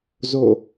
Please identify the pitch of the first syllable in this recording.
falling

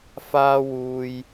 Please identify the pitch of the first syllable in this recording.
high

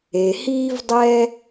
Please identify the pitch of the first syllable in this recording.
low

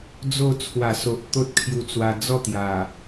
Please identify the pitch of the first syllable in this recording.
falling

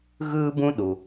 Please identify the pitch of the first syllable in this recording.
high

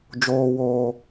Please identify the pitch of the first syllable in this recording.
high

